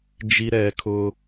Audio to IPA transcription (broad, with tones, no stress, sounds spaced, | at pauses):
d͡ʒ i˦ ɾ ɛ˨˦ kʰ ʊ˦